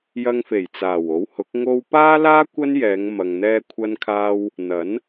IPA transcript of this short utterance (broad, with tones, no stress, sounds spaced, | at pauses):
j ɐ˧ ŋ f e˨˩ j t͡s aː˨˩ w o˨˥ w h ʊ˨˥ k̚ ŋ o˧ w p aː˥ l aː˥ kʷ ɐ˥ n j ɛː˨˧ ŋ m ɐ˨ ŋ n̪ ɛː˧ kʷʰ ɐ˧ n kʰ aː˧ w | n̪ ɐ˨˥ n